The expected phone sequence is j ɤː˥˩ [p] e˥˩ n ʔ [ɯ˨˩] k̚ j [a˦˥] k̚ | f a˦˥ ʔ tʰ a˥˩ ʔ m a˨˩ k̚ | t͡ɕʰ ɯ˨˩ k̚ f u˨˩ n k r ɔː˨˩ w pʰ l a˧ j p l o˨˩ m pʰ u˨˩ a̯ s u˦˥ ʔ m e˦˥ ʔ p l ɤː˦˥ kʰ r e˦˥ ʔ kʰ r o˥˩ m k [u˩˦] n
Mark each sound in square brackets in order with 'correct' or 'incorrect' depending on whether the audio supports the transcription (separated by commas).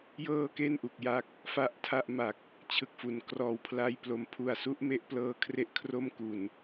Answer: incorrect, incorrect, correct, incorrect